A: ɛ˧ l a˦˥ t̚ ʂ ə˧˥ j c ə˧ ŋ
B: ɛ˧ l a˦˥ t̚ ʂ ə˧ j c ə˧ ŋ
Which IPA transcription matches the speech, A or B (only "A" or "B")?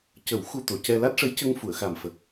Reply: A